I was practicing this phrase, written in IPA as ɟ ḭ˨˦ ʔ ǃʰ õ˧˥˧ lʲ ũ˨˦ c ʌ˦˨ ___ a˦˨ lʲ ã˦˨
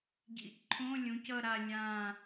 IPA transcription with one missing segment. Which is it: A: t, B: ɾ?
B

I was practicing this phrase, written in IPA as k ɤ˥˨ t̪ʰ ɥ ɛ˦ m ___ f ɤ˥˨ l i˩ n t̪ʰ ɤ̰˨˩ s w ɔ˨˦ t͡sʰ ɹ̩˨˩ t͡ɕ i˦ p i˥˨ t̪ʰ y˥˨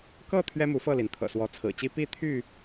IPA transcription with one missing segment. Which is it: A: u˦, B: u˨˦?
B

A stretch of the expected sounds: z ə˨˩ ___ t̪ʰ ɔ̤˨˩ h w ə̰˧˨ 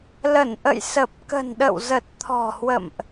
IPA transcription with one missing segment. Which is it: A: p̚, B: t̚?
B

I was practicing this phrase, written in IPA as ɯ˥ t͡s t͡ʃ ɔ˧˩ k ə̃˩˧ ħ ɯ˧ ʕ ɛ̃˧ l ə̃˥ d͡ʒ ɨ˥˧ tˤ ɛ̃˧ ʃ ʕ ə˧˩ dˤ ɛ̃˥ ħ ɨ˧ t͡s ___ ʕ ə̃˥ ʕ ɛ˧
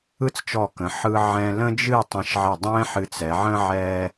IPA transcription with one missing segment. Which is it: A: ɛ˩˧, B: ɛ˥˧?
A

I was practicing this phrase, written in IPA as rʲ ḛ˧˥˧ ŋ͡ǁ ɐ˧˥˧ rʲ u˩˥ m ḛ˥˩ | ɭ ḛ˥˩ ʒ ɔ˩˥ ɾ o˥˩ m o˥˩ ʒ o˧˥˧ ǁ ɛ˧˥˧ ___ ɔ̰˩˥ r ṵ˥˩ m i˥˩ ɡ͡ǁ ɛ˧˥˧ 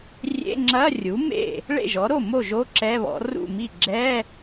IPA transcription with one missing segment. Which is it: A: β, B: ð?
A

